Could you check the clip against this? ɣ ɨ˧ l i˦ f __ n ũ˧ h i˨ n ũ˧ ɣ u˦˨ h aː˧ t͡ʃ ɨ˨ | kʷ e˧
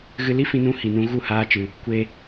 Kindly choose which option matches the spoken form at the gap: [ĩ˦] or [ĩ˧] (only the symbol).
ĩ˧